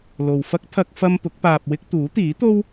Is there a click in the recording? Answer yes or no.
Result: no